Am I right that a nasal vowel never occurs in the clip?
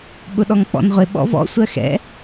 yes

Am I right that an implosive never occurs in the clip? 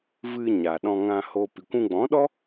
no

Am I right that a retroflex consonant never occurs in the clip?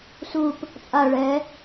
no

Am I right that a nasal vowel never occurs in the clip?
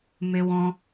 no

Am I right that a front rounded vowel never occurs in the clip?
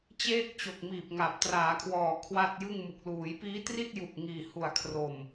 yes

